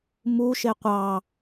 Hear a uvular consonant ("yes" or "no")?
yes